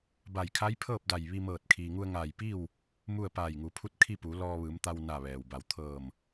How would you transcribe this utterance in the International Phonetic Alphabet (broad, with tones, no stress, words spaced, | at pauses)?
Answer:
ba˧˩jkʰa˧˥jpʰɤː˥˨p̚da˧˩j ʋi˧mɤː˧˩t̚ kʰiː˩ŋu˧ə̯ŋaː˧˩jpi˥˨w | mu˥˨ə̯ paː˧˩jŋu˩˧pʰu˧˥t̚ kʰi˥˨pu˩˧ lɔː˧ʋɯː˩˧mt̪a˧wna˧˩ ʋɛː˩wba˧˩w t̪ʰɤː˧˩m